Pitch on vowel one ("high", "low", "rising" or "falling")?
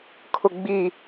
low